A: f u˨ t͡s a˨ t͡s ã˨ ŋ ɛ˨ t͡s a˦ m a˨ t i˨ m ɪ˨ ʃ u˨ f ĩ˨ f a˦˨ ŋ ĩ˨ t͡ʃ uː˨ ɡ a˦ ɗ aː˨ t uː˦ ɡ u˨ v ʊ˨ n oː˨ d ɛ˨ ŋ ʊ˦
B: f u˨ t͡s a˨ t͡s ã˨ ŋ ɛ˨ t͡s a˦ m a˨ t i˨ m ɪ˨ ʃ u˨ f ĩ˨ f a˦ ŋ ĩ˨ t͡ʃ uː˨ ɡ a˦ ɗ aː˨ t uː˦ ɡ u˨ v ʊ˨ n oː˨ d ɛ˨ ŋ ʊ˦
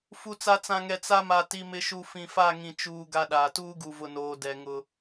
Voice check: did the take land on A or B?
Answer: A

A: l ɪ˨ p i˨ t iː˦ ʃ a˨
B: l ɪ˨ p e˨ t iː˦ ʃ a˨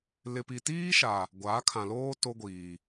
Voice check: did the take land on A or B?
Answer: A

